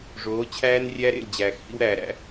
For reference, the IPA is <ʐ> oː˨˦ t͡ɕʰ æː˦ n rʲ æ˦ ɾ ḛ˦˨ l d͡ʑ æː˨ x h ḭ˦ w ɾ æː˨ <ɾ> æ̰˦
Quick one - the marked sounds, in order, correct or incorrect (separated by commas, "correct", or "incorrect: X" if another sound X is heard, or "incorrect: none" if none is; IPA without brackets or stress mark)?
correct, correct